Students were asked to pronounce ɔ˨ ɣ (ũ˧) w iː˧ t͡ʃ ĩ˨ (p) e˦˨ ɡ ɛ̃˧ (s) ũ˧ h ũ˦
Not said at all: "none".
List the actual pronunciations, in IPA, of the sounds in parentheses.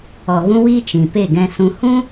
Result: ũ˧, p, s

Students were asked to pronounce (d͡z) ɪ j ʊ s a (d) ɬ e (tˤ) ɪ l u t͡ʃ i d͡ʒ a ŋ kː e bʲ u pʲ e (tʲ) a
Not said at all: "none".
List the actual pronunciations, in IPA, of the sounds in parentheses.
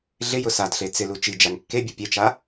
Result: ɮ, d, t͡s, t͡ʃ

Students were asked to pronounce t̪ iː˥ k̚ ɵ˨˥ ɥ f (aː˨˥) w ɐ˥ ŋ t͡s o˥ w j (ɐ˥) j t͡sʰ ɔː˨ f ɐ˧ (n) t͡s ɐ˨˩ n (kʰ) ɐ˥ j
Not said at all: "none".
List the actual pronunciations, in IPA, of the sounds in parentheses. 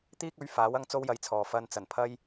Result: aː˨˥, ɐ˧, n, pʰ

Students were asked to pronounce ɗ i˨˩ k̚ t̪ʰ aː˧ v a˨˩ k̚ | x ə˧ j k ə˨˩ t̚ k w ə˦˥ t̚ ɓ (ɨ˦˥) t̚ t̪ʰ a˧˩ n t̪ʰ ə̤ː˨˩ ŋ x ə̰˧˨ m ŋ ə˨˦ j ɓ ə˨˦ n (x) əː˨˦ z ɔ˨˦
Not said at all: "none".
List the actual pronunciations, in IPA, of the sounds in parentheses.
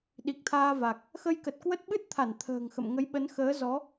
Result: ɨ˦˥, x

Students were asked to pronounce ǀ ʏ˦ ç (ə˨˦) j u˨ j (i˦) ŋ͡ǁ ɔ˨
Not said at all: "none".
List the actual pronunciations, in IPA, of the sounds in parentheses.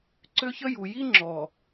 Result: ə˦, i˦

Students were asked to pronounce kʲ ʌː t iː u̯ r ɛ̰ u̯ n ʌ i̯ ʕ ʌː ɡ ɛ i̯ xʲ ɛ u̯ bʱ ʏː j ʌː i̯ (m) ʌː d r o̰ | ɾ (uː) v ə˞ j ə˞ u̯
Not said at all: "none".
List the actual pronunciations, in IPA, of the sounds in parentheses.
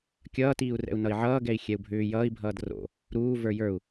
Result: bʱ, uː

